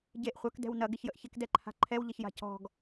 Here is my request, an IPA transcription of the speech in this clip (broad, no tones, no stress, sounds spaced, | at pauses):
ɟ e ʔ χʷ œ k d ɛ̤ w n ɐ ɡ ɪ ç j ə ʔ ç ɪ k d ɛ ǃʰ a̤ ǃʰ ɛ w ʎ ɐ ç j a̤ c ɔ̤ ɡ